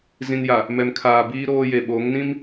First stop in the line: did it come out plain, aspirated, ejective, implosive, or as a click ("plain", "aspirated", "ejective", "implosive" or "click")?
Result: aspirated